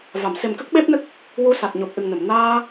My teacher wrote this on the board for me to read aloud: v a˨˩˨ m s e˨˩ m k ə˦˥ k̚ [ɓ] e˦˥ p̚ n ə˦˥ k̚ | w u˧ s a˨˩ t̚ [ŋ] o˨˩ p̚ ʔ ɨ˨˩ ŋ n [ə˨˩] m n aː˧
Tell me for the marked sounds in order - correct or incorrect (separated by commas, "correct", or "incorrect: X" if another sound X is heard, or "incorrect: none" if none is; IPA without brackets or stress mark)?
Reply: correct, incorrect: ɲ, incorrect: ə˨˩˨